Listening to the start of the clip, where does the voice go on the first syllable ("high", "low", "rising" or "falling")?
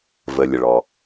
low